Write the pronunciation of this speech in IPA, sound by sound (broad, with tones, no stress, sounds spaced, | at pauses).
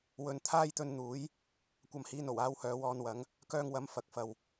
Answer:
w ɵ˨ n t̪ʰ aː˥ j t̪ ɵ˧ n n̪ uː˨˥ j | kʷ ɐ˧ m h iː˧ n o˨˩ w aː˧ w h œː˨˧ w ɔː˧ n w ɐ˨˥ ŋ | k œː˧ ŋ w ɐ˨˥ m f ɐ˨˥ k̚ f ɐ˧ w